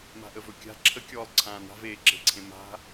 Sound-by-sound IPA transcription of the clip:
m a̤ ʔ ə v ɵ kʲ a̤ ǁʰ ə kʲ ɔː lˠ ǀʰ ãː n a̤ v eː ǁ e̤ ǀʰ ẽ m a̤

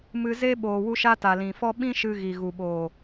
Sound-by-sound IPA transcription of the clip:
m ɨ˧ z e˦ ɓ oː˨ w u˧ ʃ a˧ t a˨ l ĩ˨ f ɔ˦ ɓ ĩ˦ ʃ ɨ˧ ɣ i˨ ɣ u˨ ɓ oː˨

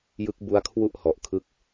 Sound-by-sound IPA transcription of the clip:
j ɯ˦˥ k̚ b u˦˥ a̯ kʰ w u˥˩ ʔ h ɔ˨˩ ʔ kʰ ɯ˦˥ k̚

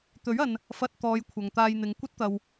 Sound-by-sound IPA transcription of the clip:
t̪ ɵ˨˥ ɥ ɐ˨ n | f ɐ˧ t̚ t̪ ɔː˨˧ j kʷʰ ɐ˨ ŋ t̪ aː˧ j n̪ ɪ˨˧ ŋ kʷ ɐ˥ t̚ t̪ ɐ˨ w

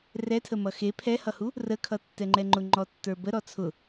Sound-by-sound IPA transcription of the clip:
r ɛ tʰ ə m ʌ x e pʰ ɛ h ʌ h u | r ə kʰ ʌ tː ɛ ŋ͡ǃ ɛ ŋ͡ǃ ʊ ŋ͡ǃ ɔ tː ə˞ b ə ɾ ɔ t͡sʰ ʊ

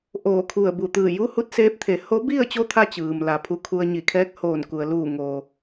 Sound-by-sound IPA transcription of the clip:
ʔ oː˧˩ kʰ u˧˩ ə̯ b u˧˩ t̪ ɯː˧˩ j u˧˥ h u˧˥ t̚ s eː˧˥ p̚ t̪ʰ e˩˧ h o˧˥ b i˥˨ ə̯ t͡ɕ o˧˥ t̪ʰ a˧ t͡ɕ ɯː˩ m l a˩˧ pʰ u˧ kʰ u˧ ə̯ ɲ i˧˩ kʰ ɛː˧˥ k̚ h oː˧˩ n k u˩ ə̯ l uː˧˩ ŋ oː˩

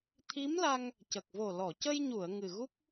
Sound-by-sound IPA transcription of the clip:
t̪ʰ i˧˥ m l a˧ ŋ | c ə˨˩ k̚ v o˨˩ l ɔ˨˩˨ c ə˧ j ɲ u˨˩˨ ə̯ ŋ ɨ˨˩ ɣ u˦˥ k̚

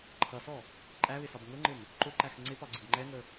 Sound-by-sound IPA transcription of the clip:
ǃʰ ʌ s ɔ | ǃʼ æ β ɪ s ɒ b ŋ ʊ ŋ͡ǃ ɪ m | ǃ ʊ ǃ æ x ŋ͡ǀ ɪ p ɒ ɡ͡ǀ ɪ b ŋ͡ǃ ɛ ŋ ə

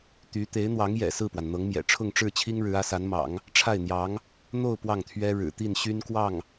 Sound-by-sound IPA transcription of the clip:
t̪ y˧˥ t̪ e˧˥ ɪ̯ n̪ w ɑ˧˥ ŋ j ɛ̰˨˩ s ɹ̩˥˩ p w a˩ n n̪ ɤ˧˥ ŋ m j ɛ̰˨˩ ʈ͡ʂʰ ʊ˥˧ ŋ ʈ͡ʂ ɻ̩˥˩ t͡ɕʰ i˥ ŋ ɻ ɻ̩˧˥ ä˧˥ s a˧˥ n m ɑ̰˨˩˦ ŋ | ʈ͡ʂʰ a˥˩ ɪ̯ n̪ j ɑ˧˥ ŋ | n̪ o˥˧ ʊ̯ p w ɑ˥˩ ŋ t̪ʰ ɥ ɛ˥ ɻ ɻ̩˨˩ t̪ i˥˩ n ɕ y˥ n k w ɑ˥˩ ŋ

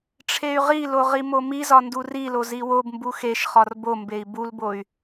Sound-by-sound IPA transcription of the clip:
ʈ͡ʂʰ e y̯ ʁ i l o ʁ i m o m i z ɒ n d u r i l o z i w o b m b u x e ʃ χ ɒ r b o m b e i̯ b u l b o y̯

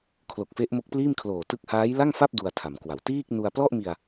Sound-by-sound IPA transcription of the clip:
kʰ l o˨˩ k̚ f e˦˥ ʔ m o˦˥ k̚ p l iː˥˩ m kʰ l oː˨˩ t ɯ˥˩ k̚ h aː˦˥ j l a˥˩ ŋ f a˥˩ p̚ d u˧ a̯ tʰ a˩˦ m k w a˩˦ w t iː˥˩ k̚ n u˧ a̯ p l ɔ˥˩ ʔ m i˧ a̯

